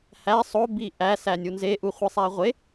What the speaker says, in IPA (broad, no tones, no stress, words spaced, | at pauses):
hæ sˤo biʔæ sænʲunze ʔuχʷisˤæʁʷe